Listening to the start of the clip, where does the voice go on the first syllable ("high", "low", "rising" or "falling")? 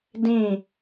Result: falling